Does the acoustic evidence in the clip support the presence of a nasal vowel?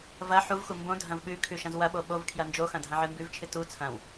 yes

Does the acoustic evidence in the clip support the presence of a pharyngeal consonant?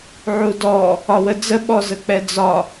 yes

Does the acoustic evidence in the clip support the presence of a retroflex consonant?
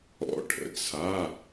yes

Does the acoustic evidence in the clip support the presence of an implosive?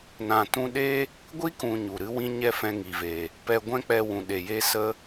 yes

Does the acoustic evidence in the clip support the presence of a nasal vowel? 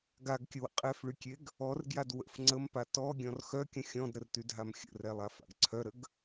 yes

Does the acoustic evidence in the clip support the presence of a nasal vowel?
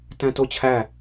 yes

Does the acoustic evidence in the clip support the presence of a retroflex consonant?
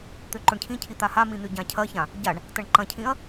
yes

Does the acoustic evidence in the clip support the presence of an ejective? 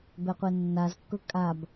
yes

